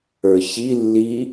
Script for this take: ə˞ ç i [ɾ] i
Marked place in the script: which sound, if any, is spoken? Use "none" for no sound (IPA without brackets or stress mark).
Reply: lː